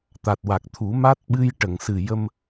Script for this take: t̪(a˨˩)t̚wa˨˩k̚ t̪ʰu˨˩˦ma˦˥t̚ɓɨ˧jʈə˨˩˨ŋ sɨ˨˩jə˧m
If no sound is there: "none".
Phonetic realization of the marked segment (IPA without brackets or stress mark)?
a˨˩